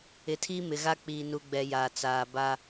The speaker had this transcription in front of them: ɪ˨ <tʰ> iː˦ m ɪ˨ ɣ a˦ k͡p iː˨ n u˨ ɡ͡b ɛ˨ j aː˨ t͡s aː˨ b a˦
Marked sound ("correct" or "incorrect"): correct